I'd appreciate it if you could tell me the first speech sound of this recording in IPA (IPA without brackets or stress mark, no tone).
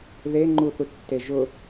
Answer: ð